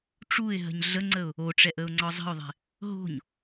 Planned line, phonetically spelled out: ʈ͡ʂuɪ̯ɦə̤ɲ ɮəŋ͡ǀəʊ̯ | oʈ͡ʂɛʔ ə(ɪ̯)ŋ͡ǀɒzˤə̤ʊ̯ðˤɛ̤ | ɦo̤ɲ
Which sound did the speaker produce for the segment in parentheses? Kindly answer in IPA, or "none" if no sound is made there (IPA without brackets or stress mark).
ʊ̯